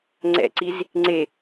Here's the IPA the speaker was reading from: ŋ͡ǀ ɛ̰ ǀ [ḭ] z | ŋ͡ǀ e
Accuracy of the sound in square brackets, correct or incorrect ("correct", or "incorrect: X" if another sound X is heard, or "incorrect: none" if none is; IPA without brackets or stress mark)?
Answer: incorrect: i